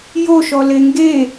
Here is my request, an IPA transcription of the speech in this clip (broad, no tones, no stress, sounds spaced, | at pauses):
j o ʃ ɔ l e ŋ ɡ e